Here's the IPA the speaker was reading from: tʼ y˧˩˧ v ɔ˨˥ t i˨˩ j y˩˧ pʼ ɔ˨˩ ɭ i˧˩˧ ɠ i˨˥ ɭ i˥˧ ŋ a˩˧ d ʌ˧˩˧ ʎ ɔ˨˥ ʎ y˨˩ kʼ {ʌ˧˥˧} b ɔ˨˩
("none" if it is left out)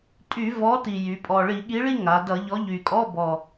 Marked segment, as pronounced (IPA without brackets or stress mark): ɔ˧˥˧